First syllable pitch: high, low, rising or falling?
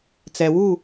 low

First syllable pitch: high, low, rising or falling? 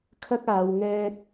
high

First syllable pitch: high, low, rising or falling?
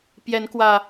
rising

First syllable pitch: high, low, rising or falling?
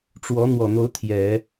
rising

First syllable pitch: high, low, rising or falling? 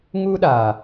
high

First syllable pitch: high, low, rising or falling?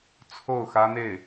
falling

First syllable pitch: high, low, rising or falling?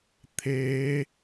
rising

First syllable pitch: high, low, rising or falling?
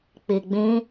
low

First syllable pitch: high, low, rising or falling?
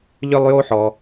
high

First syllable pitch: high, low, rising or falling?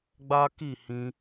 high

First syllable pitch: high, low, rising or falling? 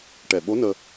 low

